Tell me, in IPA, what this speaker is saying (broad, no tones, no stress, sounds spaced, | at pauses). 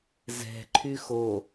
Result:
z ɛ̤ ǃʰ y x o